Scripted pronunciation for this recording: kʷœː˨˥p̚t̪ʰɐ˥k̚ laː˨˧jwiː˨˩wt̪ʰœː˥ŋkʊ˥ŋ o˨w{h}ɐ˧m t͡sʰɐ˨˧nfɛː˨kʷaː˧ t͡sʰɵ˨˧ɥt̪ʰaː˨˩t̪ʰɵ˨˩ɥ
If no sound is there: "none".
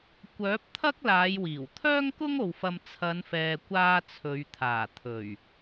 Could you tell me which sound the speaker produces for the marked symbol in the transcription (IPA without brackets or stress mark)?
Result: f